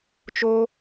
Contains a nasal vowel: no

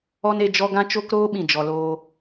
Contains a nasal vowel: yes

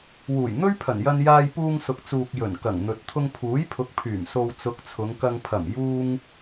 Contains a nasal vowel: no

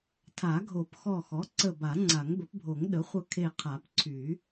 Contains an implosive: yes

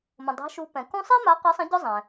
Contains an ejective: no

